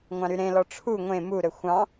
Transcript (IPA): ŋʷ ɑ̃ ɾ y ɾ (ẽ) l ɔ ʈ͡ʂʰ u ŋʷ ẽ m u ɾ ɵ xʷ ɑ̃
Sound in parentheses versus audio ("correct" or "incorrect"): correct